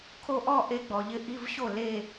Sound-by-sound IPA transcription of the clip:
kʰ o˥˧ ʔ ɔ˥˧ ʔ e˧˥ ɡ͡b ɔ˨ ʎ ɪ˧˥ ʔ i˧˥˧ v ɕ o˥˩ l e˥˧

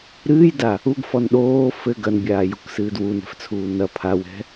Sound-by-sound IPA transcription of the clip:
ɾ ɨː j d a | u ɡ f ɔ n ɗ oː f ɘ ɡ ɐ n bʲ aː j u k s ɨː d w u n ɛ̤ f t͡sʰ uː n ɐ pʰ a w ɛ̤

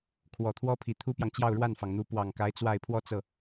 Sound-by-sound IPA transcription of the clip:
kʰ w ɔ˨˩ t̪ʰ w ɔ˥ pʰ i˨˩ t̪ʰ u˥ p j ɑ˨ ŋ t͡ɕ j ɑ˥˧ ʊ̯ ɻ w a˥˩ n f ɑ˩ ŋ n̪ u˧˥ p w ɑ˨˩ ŋ k a˧˥ ɪ̯ t͡s w a˥˧ ɪ̯ pʰ w ɔ˥˧ t͡s ɤ˥˩

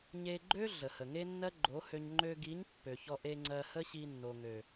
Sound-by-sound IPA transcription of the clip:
ɲ e˧ ɡ͡ǃ ø˦ ɮ ə˨ h ə˨ ŋ e˦ nː ɜ˦ ɡ͡ǃ o˨˦ h ø˧ ɲ ŋ͡ǃ ø˧ ɡ i˨˦ ɲ pː ø˨ ç ɔ˧ ʔ e˧ ŋ͡ǀ ɜ˧ h ə˦ ɕ i˧ nː o˨ ŋ ø˨

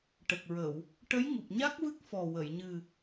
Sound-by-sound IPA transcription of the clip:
ʈ ə˨˩ k̚ ɹ ə˨˩˨ w | ʈ ə˧˥ j ŋ u˨˩ p̚ ɲ a˦˥ k̚ v ɨ˦˥ k̚ f ɔ˨˩ w ə˨˩˨ j ɲ ɨ˨˩

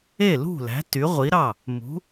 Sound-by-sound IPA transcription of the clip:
e˥˩ l ṳ˥˩ l æ̤˩˥ t y˩˥ ʁʷ i˩˥ ɾ ɑ˥˩ | m ṳ˩˥

